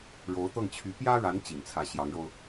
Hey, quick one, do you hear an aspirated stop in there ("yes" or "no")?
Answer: yes